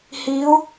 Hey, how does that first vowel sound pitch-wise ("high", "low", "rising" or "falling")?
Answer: rising